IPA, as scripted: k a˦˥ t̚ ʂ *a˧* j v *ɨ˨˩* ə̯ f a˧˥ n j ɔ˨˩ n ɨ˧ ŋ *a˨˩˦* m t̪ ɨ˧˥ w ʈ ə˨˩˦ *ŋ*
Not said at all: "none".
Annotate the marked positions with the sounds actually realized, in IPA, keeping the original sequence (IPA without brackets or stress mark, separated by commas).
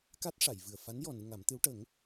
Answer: a˨˩˨, ɨ˨˩, a˨˩˦, ŋ